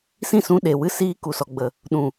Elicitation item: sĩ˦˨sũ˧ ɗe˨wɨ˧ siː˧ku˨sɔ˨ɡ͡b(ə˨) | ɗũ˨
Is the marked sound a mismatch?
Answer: no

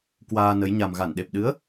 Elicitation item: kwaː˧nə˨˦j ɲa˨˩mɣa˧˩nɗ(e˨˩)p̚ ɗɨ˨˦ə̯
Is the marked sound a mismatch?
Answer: no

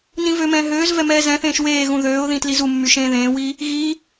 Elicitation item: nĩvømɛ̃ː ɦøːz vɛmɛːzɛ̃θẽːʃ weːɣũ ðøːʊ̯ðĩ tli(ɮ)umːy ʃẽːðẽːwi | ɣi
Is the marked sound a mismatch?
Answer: yes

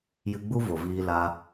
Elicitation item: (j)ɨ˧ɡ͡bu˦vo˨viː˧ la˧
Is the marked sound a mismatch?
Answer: no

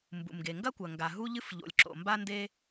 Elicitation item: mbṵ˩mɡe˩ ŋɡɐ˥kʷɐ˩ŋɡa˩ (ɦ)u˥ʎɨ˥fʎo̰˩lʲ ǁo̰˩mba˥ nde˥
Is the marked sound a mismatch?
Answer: no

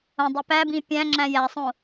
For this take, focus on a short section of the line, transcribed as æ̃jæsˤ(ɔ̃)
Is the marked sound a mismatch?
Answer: yes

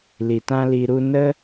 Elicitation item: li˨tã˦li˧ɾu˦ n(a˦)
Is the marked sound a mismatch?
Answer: yes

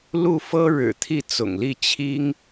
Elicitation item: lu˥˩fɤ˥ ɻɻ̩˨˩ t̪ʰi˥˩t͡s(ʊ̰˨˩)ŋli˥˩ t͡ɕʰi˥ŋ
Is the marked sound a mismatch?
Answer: no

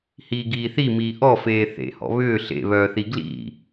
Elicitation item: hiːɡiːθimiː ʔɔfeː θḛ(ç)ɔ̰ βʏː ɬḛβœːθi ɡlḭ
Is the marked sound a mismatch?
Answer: yes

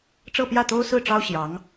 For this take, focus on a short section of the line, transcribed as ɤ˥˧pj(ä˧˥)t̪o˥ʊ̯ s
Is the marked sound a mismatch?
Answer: yes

